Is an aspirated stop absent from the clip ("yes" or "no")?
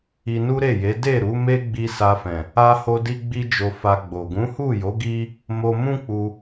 yes